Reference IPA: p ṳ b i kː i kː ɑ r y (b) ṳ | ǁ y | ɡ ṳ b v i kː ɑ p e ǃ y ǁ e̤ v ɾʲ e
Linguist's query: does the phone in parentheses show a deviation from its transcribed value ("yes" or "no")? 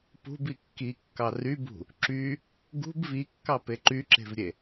no